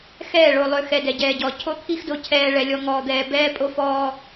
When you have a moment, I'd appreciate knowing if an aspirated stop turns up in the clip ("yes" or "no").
yes